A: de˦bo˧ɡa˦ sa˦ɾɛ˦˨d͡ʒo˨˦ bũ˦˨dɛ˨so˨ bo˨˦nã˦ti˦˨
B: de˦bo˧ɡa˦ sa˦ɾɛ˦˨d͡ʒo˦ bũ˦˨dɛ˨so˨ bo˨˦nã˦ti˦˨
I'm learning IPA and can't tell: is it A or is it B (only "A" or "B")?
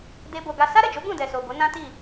A